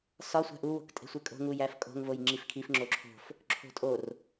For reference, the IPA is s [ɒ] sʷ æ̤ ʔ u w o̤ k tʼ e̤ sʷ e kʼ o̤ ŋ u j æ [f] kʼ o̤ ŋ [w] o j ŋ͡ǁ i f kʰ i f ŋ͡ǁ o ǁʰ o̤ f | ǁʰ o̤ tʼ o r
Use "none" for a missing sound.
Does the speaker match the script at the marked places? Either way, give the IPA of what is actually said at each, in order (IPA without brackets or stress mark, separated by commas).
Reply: ɒ, f, v